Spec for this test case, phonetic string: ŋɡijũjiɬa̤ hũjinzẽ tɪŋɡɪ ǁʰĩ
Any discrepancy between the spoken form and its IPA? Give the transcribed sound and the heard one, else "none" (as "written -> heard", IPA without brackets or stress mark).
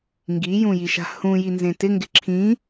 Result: ɬ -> ʃ